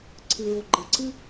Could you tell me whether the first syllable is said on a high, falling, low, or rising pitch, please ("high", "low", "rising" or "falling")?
low